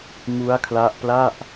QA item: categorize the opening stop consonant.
aspirated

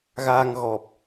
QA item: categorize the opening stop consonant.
plain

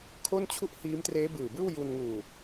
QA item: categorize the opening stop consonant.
aspirated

